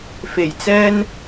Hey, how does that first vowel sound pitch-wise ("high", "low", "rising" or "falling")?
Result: low